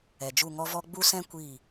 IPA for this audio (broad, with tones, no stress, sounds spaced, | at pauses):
ɛ˨ d͡ʒ u˦˨ ŋ ɔ˦ v ɔ˦ ɡ͡b u˦ s ɛ̃˦ kʷ i˦˨